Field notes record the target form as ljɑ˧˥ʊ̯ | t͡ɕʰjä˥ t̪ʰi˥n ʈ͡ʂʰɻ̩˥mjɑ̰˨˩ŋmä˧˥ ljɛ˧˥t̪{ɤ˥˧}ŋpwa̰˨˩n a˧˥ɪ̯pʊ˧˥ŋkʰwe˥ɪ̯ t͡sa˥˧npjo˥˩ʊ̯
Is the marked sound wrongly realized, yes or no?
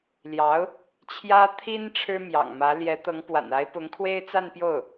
yes